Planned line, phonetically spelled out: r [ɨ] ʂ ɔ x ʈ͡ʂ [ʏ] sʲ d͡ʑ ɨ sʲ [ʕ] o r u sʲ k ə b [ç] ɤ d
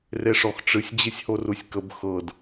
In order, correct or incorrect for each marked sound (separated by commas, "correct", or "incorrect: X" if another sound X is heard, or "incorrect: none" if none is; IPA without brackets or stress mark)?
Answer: incorrect: e, incorrect: ɨ, incorrect: h, incorrect: x